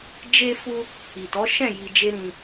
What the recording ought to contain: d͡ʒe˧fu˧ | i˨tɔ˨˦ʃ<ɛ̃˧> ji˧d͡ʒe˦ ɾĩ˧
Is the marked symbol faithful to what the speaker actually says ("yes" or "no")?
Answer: no